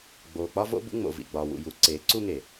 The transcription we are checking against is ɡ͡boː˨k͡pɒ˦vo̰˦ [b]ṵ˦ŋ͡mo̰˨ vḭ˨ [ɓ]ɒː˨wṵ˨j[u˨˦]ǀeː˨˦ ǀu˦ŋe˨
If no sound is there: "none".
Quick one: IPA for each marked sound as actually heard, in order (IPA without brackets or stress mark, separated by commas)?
b, ɡ͡b, u˨˦